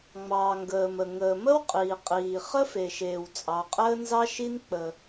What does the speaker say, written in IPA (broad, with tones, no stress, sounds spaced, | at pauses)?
ŋ͡m ɑː˩ ŋ ɡ əː˩ m ə˩ ŋ əː˩ m ə˥ w qʼ iː˩ qʼ iː˩ χ ə˥ f e˩ ʃ eː˩ w t͡sʼ ɑ˩ qʼ əː˥ n z ɑ˥ ʃ i˥ n k͡p ə˩